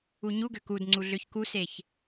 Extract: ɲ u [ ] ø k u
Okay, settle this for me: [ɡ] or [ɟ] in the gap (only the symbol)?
ɡ